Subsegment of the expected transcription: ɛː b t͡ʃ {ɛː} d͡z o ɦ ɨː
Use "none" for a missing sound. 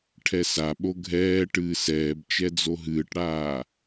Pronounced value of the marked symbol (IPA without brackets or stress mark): ɛ